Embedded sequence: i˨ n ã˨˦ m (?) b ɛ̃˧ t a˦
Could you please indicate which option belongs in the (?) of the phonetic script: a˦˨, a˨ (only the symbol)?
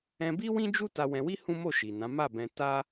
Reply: a˦˨